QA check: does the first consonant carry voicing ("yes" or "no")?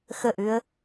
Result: no